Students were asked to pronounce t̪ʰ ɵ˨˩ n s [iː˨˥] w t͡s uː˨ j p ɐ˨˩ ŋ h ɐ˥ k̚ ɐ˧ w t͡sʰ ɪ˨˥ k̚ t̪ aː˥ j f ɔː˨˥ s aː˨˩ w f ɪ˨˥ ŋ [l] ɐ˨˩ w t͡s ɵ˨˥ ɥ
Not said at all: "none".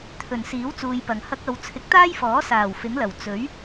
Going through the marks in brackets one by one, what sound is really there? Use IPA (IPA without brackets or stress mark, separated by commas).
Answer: iː˨˥, l